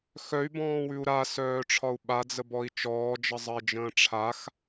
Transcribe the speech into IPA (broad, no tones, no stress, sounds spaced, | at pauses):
x œ y̯ b ɔ̃ː w ʉ u̯ ɾ a s œː ʈ͡ʂʰ ɒ u̯ ɓ a d͡z ə b ɔ i̯ t͡ʃ ɔː d͡ʒ ə zˤ ə i̯ d͡ʒ ə̃ː ʈ͡ʂʰ a x